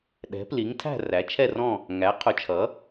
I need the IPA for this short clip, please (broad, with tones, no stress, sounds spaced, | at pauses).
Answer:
ɗ ɛ̤˨˥ p l i˨˥ ŋ tʰ æ̤˥˧ r æ˨˥ t͡ʃʰ ɛ˥˧ r ɔ̃˥˧ | ŋ æ˨˥ qʰ ʊ˨˥ t͡ʃʰ ʌ˨˥